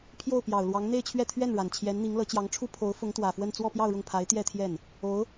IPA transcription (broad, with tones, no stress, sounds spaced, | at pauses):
pʰ j o˥˩ ʊ̯ p j ɑ˨˩ ʊ̯ l w ɑ˧˥ ŋ n̪ e˥˧ ɪ̯ t͡ɕʰ ɥ ɛ˥˧ t̪ʰ ɥ ɛ˥˩ n ɻ a˨˩ n t͡ɕʰ j ɛ˧˥ n n̪ i˧˥ ŋ l ɤ˧˥ t͡ɕ j ɑ˧˥ ŋ ʈ͡ʂʰ u˥ pʰ o˧˥ ʊ̯ f ʊ˧˥ ŋ t̪ w ä˨˩ f w ə˥˧ n t͡s w ɔ˥˧ p j ɑ˥˧ ʊ̯ ɻ ʊ˥˩ ŋ pʰ a˧˥ ɪ̯ t̪ j ɛ˥˧ t̪ʰ j ɛ˥˩ n | o˧˥ ʊ̯